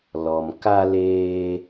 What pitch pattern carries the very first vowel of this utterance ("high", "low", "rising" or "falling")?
low